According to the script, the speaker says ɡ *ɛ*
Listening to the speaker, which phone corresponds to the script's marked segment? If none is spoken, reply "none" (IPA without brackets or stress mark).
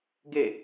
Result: e